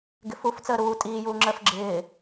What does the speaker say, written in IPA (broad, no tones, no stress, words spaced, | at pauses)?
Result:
ɡɪfuf t͡səːɾuː tʼiː juːŋ͡ǁəːfɡ͡ǁɪː